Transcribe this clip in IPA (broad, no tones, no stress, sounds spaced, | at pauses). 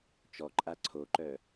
t͡ʃ ɔ ǃʼ a ǀʰ o ǃ œ